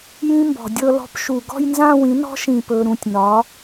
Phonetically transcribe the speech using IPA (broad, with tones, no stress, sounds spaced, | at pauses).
j ĩ˦˥ m b ɔ̤˩ dʲ ɤ˥˧ l ɔ̤˦˥ p ʃ u˧˩˧ ɡ ɔ̤˥˧ j n z ã˥˧ w ĩ˩˥ n ɔ̤˦˥ ʃ ĩ˧˩˧ p ɵ˩˧˩ ɾ ũ˩˧˩ tʲ n ɒ˩˥